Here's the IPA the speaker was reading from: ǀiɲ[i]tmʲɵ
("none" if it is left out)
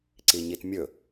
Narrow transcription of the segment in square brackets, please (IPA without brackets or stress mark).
i